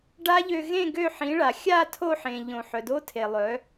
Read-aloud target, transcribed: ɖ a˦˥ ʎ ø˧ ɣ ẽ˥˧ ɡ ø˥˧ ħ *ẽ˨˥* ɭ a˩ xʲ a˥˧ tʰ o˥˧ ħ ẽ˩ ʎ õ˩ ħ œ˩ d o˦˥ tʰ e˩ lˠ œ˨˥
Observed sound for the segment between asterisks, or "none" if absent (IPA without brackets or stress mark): ĩ˨˥